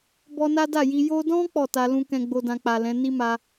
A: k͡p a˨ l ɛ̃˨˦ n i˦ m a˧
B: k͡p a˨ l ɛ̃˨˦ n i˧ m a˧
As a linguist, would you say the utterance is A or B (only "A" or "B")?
A